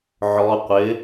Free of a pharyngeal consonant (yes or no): no